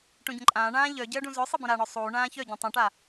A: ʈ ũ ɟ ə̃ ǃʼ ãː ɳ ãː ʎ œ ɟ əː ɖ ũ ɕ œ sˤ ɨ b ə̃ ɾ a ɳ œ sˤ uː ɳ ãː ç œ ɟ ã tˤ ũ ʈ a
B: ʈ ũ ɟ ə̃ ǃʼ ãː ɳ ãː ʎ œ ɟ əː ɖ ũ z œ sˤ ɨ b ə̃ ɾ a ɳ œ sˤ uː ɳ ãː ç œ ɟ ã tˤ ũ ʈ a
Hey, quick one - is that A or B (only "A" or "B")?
B